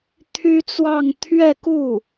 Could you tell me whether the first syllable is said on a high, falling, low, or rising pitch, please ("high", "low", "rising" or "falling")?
high